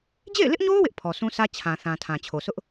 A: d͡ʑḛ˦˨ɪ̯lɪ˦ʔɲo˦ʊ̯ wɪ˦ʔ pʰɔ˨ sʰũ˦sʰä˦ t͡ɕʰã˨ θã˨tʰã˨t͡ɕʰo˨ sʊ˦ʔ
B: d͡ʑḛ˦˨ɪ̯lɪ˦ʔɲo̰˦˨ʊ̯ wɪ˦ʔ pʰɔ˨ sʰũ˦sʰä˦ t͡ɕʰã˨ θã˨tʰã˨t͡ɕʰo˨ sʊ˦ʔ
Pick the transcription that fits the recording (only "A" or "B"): A